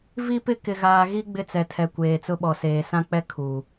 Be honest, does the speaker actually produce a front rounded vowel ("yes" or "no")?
no